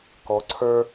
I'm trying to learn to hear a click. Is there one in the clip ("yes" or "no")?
yes